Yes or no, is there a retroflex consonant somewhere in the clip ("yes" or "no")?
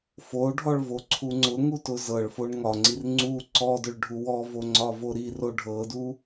yes